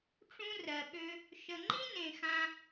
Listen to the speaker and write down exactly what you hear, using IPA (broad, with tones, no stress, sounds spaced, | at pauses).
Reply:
ʈ͡ʂ ũ˦ r ɜ˨ ɓ ø˦ | ʃ ə˨ ŋ͡ǃ ĩ˥ n ẽ˨ x ã˥